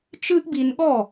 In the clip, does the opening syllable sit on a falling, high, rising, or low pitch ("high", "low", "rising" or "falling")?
high